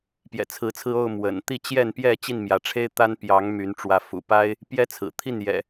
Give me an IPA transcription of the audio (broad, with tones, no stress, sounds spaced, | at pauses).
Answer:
p j ɛ̰˨˩ t͡sʰ ɹ̩˨˦ t͡sʰ ɹ̩˧ o˥˨ ʊ̯ m w ə̰˨˩ n t̪ i˥˨ t͡ɕ j ɛ˥˨ n p j ɛ˥˨ t͡ɕ i˥˨ n m j ä˨˦ ʈ͡ʂʰ e˦ ɪ̯ t̪ a˦ n p j ɑ˨˦ ŋ m y˨˦ n ʈ͡ʂ w ä˨˦ f ṵ˨˩ p a˦ ɪ̯ | p j ɛ˦ t͡sʰ ɹ̩˨˩ t̪ʰ i˥˨ n j ɛ̰˨˩